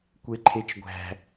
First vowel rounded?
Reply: no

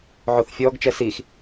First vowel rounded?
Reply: yes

